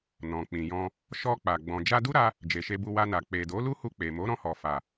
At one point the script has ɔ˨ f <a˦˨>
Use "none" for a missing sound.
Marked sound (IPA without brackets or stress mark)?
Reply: a˨